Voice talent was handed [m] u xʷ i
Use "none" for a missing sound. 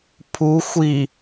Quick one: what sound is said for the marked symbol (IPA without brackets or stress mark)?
pʰ